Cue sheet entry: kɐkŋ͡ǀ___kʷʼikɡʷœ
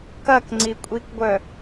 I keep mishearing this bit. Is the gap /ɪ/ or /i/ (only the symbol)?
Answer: i